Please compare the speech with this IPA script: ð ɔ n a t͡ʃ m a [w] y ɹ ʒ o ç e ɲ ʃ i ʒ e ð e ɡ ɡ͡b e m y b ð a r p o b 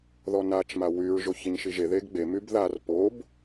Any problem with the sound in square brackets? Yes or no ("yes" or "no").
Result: no